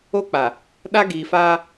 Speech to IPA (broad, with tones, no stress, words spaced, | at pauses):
o˦k͡pa˨ | ɗa˦ɡiː˨faː˦